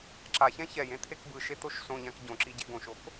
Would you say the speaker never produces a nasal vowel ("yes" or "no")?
no